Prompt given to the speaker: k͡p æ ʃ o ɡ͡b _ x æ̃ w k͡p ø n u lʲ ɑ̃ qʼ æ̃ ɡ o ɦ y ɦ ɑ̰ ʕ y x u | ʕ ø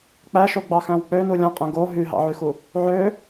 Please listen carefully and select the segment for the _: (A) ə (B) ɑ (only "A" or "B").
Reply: B